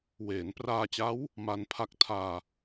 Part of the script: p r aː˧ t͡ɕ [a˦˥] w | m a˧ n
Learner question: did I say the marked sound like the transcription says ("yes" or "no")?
yes